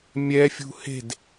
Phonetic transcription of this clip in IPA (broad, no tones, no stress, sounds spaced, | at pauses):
mʲ ɛ fʲ ṳ h e̤ d